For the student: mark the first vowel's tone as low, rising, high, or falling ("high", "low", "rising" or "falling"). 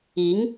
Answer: rising